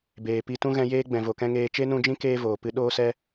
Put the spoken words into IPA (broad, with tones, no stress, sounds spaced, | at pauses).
b eː˨ p i˧ t ũ˦ ɣ ɛ̃˧ j eː˦ ɡ͡b ɛ̃˨ v o˨ k ɛ̃˦ ŋ eː˧ t͡ʃ e˦ n ũ˧ d͡ʒ ĩ˦ k eː˦ v oː˨ p ɨ˦ ɗ oː˦ s ɛ˦